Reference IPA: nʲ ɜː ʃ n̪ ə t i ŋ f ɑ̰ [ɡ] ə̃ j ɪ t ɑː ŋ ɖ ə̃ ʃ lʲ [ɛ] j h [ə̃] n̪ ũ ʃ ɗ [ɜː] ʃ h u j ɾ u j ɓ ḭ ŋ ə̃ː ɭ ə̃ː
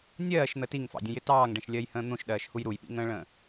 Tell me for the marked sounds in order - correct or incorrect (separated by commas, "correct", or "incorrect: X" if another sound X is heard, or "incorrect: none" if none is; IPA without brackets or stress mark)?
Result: incorrect: dʲ, incorrect: ɜ, incorrect: ə̃ː, correct